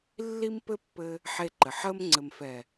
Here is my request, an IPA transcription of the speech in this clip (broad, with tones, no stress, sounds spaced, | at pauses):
lː i˦ m p ɘ˦ pː ɘ˧ | ħ e˧ ǃ ɘ˨ ħ əː˧ m ŋ͡ǀ ɘ˨ m f ɛ˨